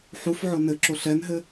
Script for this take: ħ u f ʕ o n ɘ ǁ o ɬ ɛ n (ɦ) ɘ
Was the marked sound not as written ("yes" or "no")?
no